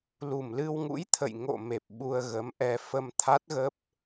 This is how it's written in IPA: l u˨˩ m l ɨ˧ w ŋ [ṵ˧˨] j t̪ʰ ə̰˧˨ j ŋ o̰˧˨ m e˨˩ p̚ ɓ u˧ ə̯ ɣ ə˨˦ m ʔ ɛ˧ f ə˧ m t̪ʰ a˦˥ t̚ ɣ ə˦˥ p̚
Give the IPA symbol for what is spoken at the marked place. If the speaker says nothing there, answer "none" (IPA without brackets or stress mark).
ṵ˧˥